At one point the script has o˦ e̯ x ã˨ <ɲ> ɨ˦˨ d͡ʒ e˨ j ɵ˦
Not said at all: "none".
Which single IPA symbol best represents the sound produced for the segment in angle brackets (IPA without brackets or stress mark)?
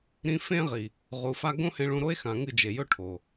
ŋ